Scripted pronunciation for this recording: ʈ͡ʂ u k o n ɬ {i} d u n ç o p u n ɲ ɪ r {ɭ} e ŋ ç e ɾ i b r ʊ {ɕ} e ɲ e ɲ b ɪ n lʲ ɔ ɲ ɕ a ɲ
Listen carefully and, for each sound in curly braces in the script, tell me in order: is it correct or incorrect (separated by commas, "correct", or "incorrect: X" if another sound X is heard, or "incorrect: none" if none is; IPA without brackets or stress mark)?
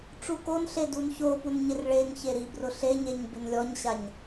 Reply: incorrect: e, correct, incorrect: ɬ